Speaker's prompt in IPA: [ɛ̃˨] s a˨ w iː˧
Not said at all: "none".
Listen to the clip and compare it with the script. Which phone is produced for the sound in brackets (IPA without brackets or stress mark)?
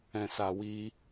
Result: ɛ̃˨